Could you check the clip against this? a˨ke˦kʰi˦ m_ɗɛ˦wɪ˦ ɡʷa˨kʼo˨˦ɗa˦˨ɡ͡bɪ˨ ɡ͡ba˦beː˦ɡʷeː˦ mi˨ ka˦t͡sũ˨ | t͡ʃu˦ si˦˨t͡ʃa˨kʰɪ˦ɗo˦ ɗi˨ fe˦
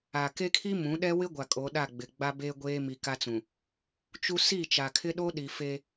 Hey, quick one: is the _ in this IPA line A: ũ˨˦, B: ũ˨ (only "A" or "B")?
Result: A